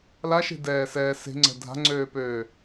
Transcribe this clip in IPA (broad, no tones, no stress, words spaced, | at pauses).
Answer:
laʃe̤dɛːsɛː se̤ŋ͡ǀɛ̤ dʱa̤ŋ͡ǀøːpøː